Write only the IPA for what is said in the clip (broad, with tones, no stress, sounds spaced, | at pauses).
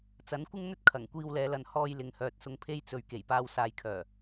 t͡s ɐ˨˥ n kʷ ɪ˥ ŋ n̪ ɵ˥ t̚ kʰ ɐ˨˩ ŋ kʷ iː˧ w l ɛː˨˧ l ɐ˨ n h ɔː˧ j l ɪ˨ ŋ h œː˨ t̚ s ʊ˧ ŋ pʰ e˥ j t͡s ɵ˨ ɥ k e˨˩ j p aː˧ w s aː˨ j kʰ œː˨˩